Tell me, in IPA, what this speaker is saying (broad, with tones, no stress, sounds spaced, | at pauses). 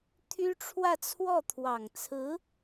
t̪ʰ y˥ ʈ͡ʂʰ w ä˥˧ t͡sʰ w ɔ˥˩ t̪ʰ w ɑ˨˩ ŋ t͡sʰ ɹ̩˧˥